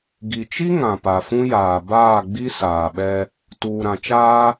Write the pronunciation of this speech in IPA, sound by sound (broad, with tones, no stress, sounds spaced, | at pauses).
ɡ i˨ t͡ʃ i˦ ŋ ã˨ p a˨ f ũ˦ j aː˨ b aː˦˨ ɡ͡b i˦ s aː˨ ɓ ɛ˦ | t uː˨ ɾ ã˨ t͡ʃ aː˦